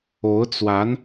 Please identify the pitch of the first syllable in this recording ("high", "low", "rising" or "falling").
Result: rising